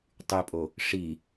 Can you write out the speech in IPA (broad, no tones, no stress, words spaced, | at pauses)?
tˤypʼo | ʂi